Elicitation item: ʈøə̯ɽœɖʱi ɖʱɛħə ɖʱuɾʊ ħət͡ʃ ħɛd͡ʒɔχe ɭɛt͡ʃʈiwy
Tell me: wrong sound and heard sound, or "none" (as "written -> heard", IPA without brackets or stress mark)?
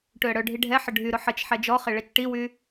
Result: u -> y